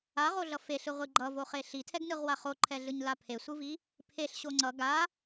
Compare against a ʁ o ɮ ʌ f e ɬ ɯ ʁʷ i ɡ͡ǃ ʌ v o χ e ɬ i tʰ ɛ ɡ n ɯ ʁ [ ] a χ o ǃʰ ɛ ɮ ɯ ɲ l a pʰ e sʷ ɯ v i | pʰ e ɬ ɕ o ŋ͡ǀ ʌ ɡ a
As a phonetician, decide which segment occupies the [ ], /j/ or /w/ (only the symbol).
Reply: w